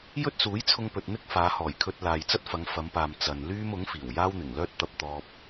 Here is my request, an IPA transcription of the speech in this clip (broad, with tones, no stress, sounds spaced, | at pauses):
j ɵ˥ t̚ s uː˨˥ j t͡sʰ ʊ˧ ŋ p ɵ˨ t̚ n̪ ɪ˥ k̚ f aː˨˧ h ɔː˨˩ j kʰ ɵ˧ t̚ l aː˨ j t͡s ɐ˥ t̚ f ɐ˨˧ ŋ f ɐ˨˧ m p aː˨ m t͡s ɐ˨ n l yː˥ m ʊ˨˥ ŋ f iː˨˩ w j aː˥ w n̪ ɪ˨˩ ŋ l œː˥ t̚ t̪ ɐ˧ p̚ t̪ ɔː˧ p̚